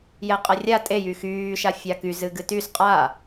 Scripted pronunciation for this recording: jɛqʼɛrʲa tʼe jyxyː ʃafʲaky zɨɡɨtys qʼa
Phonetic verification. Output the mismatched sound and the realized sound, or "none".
none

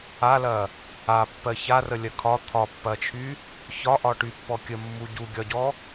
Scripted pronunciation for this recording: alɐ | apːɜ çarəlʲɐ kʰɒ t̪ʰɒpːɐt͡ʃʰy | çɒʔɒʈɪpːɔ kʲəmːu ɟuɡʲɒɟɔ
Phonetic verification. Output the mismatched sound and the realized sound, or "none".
ɪ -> y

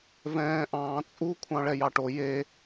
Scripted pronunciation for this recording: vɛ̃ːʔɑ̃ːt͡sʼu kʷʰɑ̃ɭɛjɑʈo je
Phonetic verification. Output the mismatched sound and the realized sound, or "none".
none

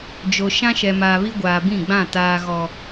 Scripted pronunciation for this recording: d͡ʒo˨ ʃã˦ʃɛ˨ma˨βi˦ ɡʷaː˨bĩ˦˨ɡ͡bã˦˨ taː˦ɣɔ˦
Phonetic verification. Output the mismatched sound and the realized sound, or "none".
a˨ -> aː˨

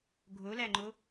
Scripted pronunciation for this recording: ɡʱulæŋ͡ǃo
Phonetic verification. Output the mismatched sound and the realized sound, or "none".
u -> o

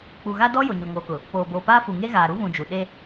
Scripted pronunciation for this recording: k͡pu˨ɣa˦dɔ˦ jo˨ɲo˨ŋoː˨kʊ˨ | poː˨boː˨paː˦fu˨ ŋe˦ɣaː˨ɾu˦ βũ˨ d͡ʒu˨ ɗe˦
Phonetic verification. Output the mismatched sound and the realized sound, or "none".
none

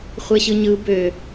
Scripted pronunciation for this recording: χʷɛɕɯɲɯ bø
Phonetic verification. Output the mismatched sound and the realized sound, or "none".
none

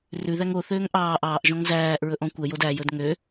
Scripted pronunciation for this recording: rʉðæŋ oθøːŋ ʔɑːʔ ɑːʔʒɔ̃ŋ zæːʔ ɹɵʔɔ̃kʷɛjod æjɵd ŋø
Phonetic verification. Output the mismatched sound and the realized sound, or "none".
none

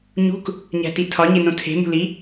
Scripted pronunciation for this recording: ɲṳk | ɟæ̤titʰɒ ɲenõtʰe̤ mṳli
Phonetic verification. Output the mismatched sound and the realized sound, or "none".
ɟ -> ɲ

